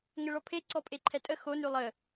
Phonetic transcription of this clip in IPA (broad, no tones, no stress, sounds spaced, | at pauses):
ŋ ə ɭ ɔ pʰ e ǀ ɔ pʼ e ǃʰ ɛ tʼ ə x o n ʉ lˠ ə